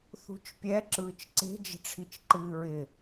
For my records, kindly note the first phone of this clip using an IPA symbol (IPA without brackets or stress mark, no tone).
θ